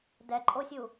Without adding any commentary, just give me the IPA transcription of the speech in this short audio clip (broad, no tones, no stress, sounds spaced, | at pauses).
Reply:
d ɛ ǃʼ o sʲ u